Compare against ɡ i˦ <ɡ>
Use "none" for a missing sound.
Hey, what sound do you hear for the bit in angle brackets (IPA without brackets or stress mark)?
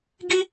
none